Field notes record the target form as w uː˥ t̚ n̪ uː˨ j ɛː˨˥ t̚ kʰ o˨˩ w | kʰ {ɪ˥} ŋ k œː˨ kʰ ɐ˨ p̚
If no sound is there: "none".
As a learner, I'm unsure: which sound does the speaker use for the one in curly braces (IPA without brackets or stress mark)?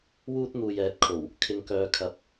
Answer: ɪ˨